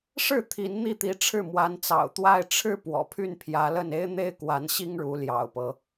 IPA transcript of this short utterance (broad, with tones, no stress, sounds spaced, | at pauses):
ʂ ɻ̩˥˩ t̪ʰ i˧˥ n n̪ i˥˩ t̪ i˧˥ ʈ͡ʂʰ ɻ̩˥˩ m w a˧˥ n t͡s ɑ̰˨˩ ʊ̯ t̪ w a˥˧ ɪ̯ ʈ͡ʂʰ ɻ̩˥˩ p w ɔ̰˨˩ pʰ y˥˩ n pʰ j ä˧˥ l ə˥˩ n e˥ ɪ̯ n̪ e˥ ɪ̯ k w a˧˥ n ɕ i˥ ŋ ɻ u˧˥ l j ɑ̰˨˩ ʊ̯ p ɤ˦